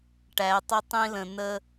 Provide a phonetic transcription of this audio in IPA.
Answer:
ʈ æ˨ tˤ ə˧ tˤ ĩ˧ l ə̃˨ n ə˧

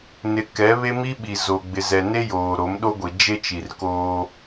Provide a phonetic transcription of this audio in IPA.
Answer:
n ɪ˨ k ɛ˨˦ β e˦ m i˦ ɓ i˨ z o˨ ɡ͡b ɪ˨ z ɛ˨ n e˦ j oː˨ ɾ o˨˦ m ɗ o˦ ɡʷ i˨ d͡ʒ e˦ t͡ʃ i˨ r k oː˦

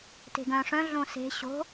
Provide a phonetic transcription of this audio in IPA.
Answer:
t e̤ ɡ œ̃ ʂ œ̃ ɮ õ s e̤ ɕ o̤

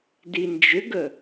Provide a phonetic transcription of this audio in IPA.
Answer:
d i n d͡ʒ ʏ ɡ ə

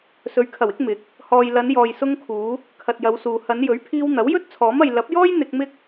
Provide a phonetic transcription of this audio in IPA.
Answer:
s ɵ˨˧ ɥ kʰ ɐ˨˩ w ɪ˨˥ k̚ m ɪ˨˥ k̚ | h ɔː˨ j l ɐ˨˧ n j ɔː˨ j s ʊ˧ ŋ kʰ uː˨˧ | kʰ ɐ˨ t̚ j ɐ˨˧ w s uː˨ h ɐ˨˧ n j ɵ˨˥ ɥ pʰ iː˧ w n̪ ɐ˨˥ w j ɵ˥ t̚ t͡sʰ ɔː˨˥ m ɐ˨ j l ɐ˨˥ p̚ j ɔː˥ j n̪ ɪ˧ k̚ m ɪ˥ k̚

